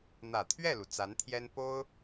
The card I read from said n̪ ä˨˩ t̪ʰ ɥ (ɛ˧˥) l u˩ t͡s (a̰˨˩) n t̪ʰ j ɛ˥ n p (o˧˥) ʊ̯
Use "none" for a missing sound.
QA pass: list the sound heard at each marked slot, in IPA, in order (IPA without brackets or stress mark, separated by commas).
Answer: ɛ˥˩, a˧˥, o˥